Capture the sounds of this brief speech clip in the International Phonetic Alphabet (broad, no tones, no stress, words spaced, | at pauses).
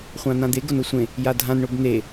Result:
χʷãn̪ãd̪e ɡonosʷẽ | jadʱãn ɳobn̪e